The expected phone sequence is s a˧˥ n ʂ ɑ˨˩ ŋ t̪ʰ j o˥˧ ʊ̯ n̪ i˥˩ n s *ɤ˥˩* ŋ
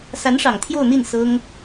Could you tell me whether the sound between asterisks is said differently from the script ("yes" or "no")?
yes